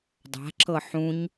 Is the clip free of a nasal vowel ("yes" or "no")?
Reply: no